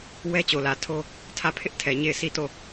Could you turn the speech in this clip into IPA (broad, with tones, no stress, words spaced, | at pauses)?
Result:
wɛ˦t͡ɕo˨lä˨tʰo˦ | tʰä˦˨ pʰɪ˦ʔ tʰɛ˨ ɲe˦˨ɪ̯si˦˨ to˦˨